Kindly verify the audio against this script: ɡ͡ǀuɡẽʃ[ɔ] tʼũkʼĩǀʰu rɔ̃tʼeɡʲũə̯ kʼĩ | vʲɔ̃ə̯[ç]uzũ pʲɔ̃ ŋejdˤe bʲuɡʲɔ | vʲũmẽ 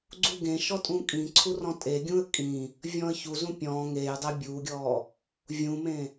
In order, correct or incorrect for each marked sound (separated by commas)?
correct, correct